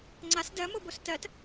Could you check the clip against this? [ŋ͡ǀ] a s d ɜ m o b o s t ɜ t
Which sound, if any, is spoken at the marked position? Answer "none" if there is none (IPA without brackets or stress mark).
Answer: ŋ͡ǀ